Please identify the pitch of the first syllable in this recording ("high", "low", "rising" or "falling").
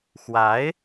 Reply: rising